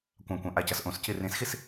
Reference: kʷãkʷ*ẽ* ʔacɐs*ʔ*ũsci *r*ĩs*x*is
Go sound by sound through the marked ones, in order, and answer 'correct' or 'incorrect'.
incorrect, correct, correct, correct

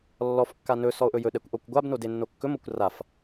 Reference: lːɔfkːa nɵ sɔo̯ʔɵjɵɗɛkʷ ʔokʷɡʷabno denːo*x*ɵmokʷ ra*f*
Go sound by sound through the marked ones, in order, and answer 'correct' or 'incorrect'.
incorrect, correct

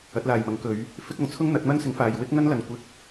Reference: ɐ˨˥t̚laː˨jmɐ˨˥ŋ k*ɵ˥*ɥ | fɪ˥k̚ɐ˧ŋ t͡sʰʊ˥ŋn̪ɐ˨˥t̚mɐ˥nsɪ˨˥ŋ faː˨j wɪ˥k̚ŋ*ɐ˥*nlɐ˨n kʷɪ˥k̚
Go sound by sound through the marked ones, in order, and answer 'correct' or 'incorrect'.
incorrect, correct

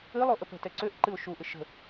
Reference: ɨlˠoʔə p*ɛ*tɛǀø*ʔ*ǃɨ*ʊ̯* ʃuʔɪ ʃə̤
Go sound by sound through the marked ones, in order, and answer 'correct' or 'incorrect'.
incorrect, correct, correct

